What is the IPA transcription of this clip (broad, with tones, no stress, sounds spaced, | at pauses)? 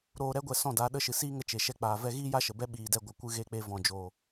ɾ oː˧ ɾ ɛ˦ ɡʷ ɛ˧ s ɔ̃˦˨ d a˨˦ ɗ ə˦˨ ʃ ɨ˨ s iː˦ ŋ ə˧ t͡ʃ e˨ ʃ ɛ˦˨ k͡p aː˨ v ɛ˦ ɣ iː˦ j a˦ ʃ ə˨ b ɛ˦ ɓ iː˨ d ɛ˧ ɡʷ ə˨ kʷ ɨ˧ ɣ e˧ k͡p e˧ v ɔ̃˨ d͡ʒ oː˨